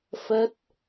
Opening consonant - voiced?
no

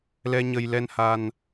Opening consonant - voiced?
yes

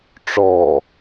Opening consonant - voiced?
no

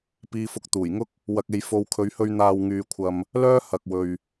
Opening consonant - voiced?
no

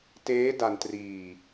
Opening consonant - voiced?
no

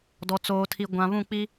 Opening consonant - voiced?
yes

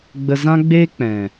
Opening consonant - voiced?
yes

